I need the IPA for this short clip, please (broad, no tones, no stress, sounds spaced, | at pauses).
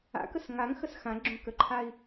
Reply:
a̰ k ə s ŋ a ŋ x ə s x ã ɡ͡ǁ õ k ə ǃʰ a i̯